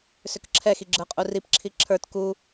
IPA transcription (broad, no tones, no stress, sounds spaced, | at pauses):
s ʏ k ǁʰ ɛ x i ɡ͡ǁ ə˞ qʼ u r i p ǁʰ i ǁʰ ə˞ t k u